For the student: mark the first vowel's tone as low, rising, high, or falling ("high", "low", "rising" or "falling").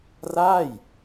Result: falling